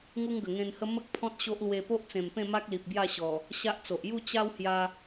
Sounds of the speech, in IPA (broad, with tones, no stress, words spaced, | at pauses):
ŋu˦ŋɡə˨˩ŋẽ˧nhə˦ mə˦k̚ pʰɔ̃˦t̚ ɕo˦ʔlwe˧ po˦ʔt͡sẽ˨˩mpẽ˥˧ ma˦k̚li˨p̚ bja˥˧ɕɔ˨˩ | ɕa˦ʔt͡so˨ʔ ju˥˧ t͡ɕa˦whja˧